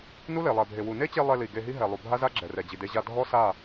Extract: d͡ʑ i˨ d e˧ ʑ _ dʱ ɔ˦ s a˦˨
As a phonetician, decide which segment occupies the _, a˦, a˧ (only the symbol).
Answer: a˧